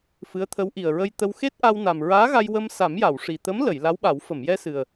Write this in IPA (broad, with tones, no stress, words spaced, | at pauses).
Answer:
fɨ˧˥ə̯t̪ʰə˧˥w ʔi˨˩ə̯ɹə˧jt̪ə˧w xe˦˥t̚ʔa˧wna˨˩m ɹaː˧˥ɣa˧j wə˧m sa˨˩˦mja˨˩˨w ʂi˨˩t̪ə˧˥mlə˨˩˨j la˧˥wɓa˨˩˦w fə˨˩˨mjɛ˧sɨ˨˩ə̯